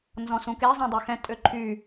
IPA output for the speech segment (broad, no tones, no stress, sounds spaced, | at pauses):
n z ɔ̃ s ũ k e zˤ ɛ̃ dˤ ø x ɛ̃ tʼ ø ǃʰ y